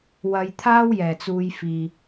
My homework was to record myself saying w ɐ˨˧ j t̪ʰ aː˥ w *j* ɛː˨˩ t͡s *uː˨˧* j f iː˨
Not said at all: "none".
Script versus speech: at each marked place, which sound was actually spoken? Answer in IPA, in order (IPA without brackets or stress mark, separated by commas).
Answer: j, uː˨˧